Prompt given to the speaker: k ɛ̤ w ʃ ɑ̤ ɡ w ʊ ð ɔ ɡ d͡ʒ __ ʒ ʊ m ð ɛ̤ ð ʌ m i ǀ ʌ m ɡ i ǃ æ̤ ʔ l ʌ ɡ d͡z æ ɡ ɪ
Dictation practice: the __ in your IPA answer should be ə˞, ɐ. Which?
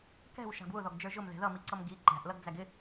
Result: ə˞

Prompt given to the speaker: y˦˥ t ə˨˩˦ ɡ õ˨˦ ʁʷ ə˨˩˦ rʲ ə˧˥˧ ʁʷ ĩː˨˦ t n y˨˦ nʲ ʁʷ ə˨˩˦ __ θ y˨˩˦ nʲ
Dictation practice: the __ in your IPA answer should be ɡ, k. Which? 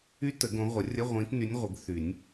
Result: ɡ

